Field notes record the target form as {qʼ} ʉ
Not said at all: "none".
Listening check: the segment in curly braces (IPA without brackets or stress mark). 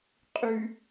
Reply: qʼ